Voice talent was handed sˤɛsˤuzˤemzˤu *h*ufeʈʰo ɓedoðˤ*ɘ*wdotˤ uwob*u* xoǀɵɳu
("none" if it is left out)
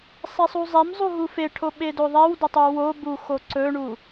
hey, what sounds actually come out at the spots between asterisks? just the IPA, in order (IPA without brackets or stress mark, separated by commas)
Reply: ɦ, ɛ, u